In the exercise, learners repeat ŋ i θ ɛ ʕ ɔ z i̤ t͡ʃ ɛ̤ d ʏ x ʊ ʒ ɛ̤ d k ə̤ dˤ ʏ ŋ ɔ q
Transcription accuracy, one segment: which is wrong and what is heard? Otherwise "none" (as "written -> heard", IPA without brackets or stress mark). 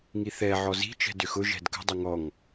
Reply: q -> ŋ